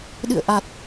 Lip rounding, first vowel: unrounded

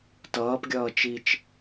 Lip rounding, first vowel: unrounded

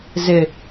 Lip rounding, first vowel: unrounded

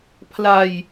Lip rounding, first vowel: unrounded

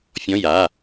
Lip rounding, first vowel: rounded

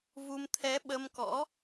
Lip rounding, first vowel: rounded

